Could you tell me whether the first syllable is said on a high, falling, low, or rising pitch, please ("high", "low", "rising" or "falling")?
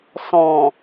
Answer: low